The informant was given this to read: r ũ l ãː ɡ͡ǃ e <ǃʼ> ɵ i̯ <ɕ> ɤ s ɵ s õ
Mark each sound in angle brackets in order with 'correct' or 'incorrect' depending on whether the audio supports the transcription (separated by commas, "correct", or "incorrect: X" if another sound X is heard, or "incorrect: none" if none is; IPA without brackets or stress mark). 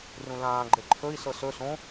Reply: incorrect: ǃʰ, incorrect: s